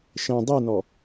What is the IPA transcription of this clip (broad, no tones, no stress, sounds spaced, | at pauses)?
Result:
ʃ ɛ̃ dˤ i n ɔ